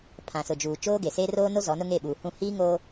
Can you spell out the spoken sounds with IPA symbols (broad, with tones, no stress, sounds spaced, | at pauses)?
pʰ ã˨ s ʊ˨ d͡ʒ uː˨ t͡ʃ oː˦ ɡ e˨ s e˦ r oː˦ n o˦ z ɔ˨˦ n ʊ˦ ŋ e˦˨ ɓ uː˨ h ũ˦˨ h iː˦ ŋ oː˦